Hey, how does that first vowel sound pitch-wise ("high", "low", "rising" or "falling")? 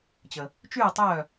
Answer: low